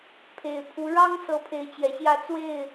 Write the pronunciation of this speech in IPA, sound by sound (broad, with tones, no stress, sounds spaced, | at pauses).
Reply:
pʰ e˨˩ ɪ̯ pʰ u˨˦ ɻ ɑ˦ ŋ s ɤ˨˦ pʰ e˨˦ ɪ̯ t͡ɕ j ɛ˨˩ ɕ j ä˥˨ t͡s w e˥˨ ɪ̯